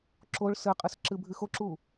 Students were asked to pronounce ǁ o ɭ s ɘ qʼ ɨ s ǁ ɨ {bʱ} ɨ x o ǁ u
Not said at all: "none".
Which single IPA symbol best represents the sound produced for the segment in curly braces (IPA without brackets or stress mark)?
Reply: bʱ